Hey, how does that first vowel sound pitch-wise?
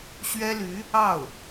high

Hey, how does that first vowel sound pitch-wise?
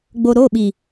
low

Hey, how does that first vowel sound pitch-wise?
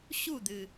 falling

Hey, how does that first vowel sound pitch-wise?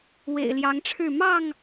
low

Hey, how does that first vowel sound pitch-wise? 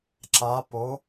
rising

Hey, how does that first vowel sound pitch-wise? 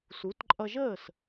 rising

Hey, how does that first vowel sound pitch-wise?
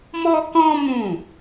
high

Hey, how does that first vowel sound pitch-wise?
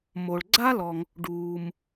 low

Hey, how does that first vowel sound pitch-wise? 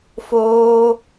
high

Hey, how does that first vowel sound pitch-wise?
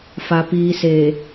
low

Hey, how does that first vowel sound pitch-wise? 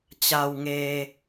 low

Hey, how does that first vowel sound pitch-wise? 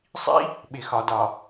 high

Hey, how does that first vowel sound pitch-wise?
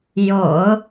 low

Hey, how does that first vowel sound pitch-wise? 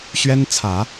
high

